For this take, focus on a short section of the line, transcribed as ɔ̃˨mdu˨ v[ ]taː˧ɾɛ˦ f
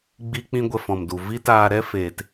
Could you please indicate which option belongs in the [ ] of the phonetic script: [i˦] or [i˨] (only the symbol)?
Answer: i˦